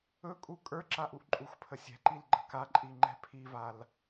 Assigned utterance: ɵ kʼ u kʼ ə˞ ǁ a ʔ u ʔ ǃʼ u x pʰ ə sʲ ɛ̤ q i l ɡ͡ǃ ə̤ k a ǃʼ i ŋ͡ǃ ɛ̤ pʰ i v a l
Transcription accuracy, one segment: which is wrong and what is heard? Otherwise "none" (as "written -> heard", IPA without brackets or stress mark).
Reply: q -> ǃ